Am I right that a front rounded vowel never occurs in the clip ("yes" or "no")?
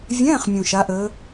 yes